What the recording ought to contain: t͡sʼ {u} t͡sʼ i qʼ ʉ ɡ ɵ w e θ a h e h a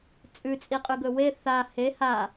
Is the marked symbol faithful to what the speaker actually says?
no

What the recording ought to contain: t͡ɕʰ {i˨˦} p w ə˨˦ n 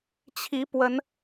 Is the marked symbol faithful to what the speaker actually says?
yes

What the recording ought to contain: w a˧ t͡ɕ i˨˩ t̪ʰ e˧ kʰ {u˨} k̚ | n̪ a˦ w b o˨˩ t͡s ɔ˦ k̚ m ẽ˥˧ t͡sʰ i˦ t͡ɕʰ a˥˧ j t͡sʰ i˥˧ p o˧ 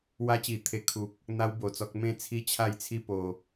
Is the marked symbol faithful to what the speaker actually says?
yes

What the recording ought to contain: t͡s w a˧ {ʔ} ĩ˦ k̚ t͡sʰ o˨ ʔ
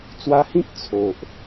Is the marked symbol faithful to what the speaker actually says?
no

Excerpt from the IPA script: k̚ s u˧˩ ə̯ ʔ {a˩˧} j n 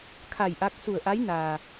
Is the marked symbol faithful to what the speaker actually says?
no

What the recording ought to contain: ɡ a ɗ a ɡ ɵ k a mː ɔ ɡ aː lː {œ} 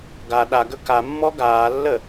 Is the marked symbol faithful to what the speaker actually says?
no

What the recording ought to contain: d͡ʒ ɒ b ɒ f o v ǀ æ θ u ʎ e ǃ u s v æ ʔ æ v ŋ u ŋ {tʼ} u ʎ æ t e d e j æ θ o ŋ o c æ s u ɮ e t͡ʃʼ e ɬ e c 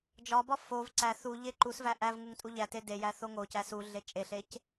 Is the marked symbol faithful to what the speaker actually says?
yes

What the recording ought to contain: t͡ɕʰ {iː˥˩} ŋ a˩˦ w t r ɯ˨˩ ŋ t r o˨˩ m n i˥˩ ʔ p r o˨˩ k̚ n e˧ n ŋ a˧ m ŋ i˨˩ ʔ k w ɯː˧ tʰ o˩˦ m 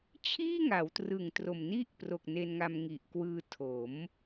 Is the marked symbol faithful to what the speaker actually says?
yes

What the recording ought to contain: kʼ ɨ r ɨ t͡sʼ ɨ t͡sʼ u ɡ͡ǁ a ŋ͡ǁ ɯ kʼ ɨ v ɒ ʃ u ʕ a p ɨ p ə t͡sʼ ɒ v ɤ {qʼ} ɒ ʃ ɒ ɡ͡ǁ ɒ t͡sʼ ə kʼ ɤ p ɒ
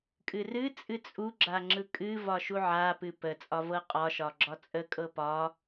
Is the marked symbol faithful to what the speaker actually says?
yes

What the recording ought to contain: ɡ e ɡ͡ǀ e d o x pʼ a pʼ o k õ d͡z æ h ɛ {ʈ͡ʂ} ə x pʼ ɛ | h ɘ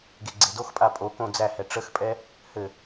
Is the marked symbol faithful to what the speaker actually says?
yes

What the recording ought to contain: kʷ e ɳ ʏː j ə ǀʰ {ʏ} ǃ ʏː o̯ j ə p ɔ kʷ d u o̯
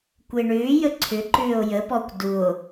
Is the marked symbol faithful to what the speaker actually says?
yes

